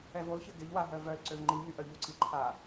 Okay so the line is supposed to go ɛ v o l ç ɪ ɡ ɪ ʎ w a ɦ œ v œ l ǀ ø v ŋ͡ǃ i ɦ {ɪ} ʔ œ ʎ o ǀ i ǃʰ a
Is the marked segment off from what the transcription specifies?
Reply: yes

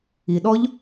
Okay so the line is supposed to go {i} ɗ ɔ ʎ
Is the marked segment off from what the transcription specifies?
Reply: no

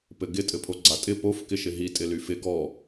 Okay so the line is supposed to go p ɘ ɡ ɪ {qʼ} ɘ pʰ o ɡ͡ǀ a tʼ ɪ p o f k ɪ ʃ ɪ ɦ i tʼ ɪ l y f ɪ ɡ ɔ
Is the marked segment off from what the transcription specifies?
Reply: yes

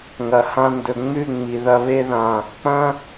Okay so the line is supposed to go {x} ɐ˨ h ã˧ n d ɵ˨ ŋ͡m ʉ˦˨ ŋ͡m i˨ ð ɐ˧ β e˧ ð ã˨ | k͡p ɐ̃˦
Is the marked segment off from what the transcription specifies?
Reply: yes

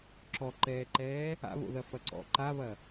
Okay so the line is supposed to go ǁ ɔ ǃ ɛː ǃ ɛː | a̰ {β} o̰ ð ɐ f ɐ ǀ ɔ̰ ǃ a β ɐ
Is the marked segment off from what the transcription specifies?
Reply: no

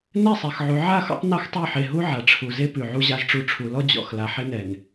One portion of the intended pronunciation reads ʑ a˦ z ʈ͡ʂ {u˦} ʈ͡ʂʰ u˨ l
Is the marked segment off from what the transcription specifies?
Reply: no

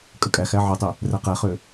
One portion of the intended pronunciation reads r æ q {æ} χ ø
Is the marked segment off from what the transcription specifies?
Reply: yes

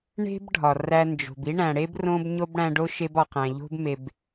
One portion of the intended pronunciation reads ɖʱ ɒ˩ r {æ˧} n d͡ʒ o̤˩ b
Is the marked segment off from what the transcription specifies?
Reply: no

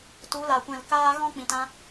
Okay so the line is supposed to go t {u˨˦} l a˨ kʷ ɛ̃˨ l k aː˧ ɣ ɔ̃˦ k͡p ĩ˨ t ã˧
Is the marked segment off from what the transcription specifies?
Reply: no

